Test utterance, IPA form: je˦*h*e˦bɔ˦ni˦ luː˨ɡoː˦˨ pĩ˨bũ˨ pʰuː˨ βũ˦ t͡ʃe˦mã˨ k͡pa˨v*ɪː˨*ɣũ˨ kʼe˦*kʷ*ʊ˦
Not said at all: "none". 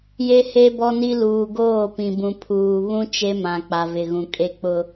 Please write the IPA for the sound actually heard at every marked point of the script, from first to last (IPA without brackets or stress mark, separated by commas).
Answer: h, ɪ˨, k͡p